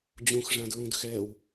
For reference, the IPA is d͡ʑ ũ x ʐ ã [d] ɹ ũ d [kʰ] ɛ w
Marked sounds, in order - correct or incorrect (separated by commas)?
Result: correct, incorrect